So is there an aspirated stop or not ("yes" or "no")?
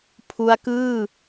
yes